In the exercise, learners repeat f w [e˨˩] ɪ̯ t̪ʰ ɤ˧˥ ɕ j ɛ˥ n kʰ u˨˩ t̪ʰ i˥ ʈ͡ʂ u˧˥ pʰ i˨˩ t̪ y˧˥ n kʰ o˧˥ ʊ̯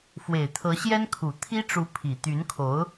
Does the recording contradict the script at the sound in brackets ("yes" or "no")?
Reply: no